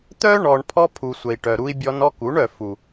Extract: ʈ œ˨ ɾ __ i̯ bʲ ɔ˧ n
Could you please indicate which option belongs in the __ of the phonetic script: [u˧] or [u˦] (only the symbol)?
u˧